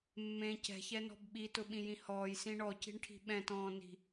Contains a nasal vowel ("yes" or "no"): yes